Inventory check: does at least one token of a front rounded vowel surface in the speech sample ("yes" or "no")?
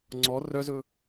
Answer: yes